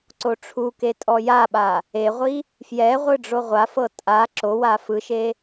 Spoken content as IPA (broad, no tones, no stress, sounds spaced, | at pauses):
ǀ o ʈ͡ʂʰ u k e tʼ ɔ j a ɓ a | e ʁʷ i | f j ɛ ʁʷ ɯ ɖ͡ʐ o ʁʷ a f ɤ tʼ a ǁ o w a f ɯ ʃ e